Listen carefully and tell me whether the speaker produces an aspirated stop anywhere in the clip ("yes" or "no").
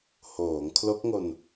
yes